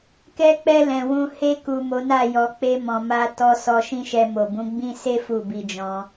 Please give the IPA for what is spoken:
kɛ˧k͡pɛ˧ lɛ̃˨wũ˧ he˧ku˨ mo˨˦na˦˨jɔ˧ k͡pe˧mɔ̃˨ma˧ tɔ˧ sɔ˧ʃĩ˦ʃɛ˧ mo˨bũ˨˦ɡ͡bĩ˦ se˦ fu˦˨bi˧d͡ʒɔ̃˧

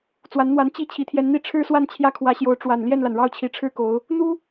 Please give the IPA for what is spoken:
t͡swa˧˥nn̪wa˧˥n t͡ɕi˥˩ t͡ɕʰi˧˥t̪ʰjɛ˧˥nn̪i˥ ʈ͡ʂʰɻ̩˥swa˥˧n t͡ɕʰjä˥˩kʰwä˧˥ɕjo˧˥ʊ̯ ʈ͡ʂwa˨˩n ljɛ˥˩nla˩n ɻɑ˥˩ʊ̯t͡ɕʰi˧˥ʈ͡ʂʰɻ̩˥ko˧˥ʊ̯ | n̪u˥

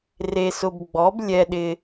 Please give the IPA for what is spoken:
re˧sʊ˧b ɡ͡bɔ˨˥b lʲɛ˧ɗɪ˧

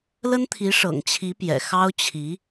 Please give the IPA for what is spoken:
lə˥nt̪ʰi˧˥ʂɤ̰˨˩ŋ t͡ɕʰi˧˥pjɛ̰˨˩ xɑ˥ʊ̯ t͡ɕʰi˧˥

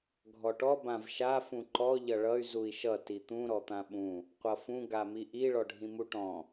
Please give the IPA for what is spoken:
ɡʱɔʈɔ bãvʃa fũǃɔ ʎʌɭʌy̯ zui̯ʃʌ tit̪ũ ɾɔt̪ãɓũ | qʷʌfũ ɡamiʔi ɭɔɖʱĩmuʈɔ̃

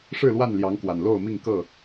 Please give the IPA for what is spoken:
ʂɻ̩˥˨lwa˥˨nljɑ˨˦ŋkwa˨˩n lo˥˨ʊ̯mi˥˨ŋkɤ˥˨

